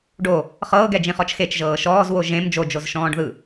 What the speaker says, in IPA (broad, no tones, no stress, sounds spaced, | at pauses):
ɖ o | χ ɤː ɡ ɛ d͡ʒ ĩ χ ɔ t͡ʃ x e t͡ʃ ʒ ɤː ʃ ɔː z w o ʒ ẽ m d͡ʒ o d͡ʒ o z ʃ ɔ̃ː ɖ ð ɯ